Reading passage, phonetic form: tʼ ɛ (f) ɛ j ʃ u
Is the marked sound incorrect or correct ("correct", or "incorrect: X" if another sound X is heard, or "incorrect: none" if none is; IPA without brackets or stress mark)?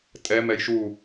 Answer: incorrect: m